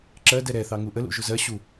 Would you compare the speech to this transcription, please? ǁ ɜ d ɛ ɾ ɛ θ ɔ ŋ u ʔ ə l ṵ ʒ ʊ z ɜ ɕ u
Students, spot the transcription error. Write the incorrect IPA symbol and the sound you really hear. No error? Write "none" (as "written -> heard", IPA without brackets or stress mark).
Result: ɔ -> ɑ